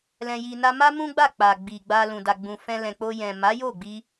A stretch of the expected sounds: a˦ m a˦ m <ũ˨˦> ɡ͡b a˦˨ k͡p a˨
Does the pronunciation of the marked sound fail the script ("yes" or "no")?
yes